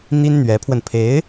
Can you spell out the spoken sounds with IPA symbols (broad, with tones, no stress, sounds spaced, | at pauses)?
n̪ i˥ n n̪ ɥ ɛ˧˥ pʰ w ə˧ n pʰ e˧˥ ɪ̯